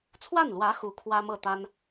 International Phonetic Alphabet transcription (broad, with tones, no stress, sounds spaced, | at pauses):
t͡sʰ w a˥˩ n l w ä˧˥ x u˥ kʰ w ä˥ m ɤ˥˩ t̪ a˥ n